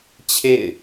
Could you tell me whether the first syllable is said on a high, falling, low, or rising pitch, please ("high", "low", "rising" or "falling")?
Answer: falling